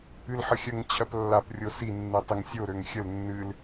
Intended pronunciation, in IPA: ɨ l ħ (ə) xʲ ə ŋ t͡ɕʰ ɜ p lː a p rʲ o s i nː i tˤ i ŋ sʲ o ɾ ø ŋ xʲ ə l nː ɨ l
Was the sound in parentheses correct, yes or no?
yes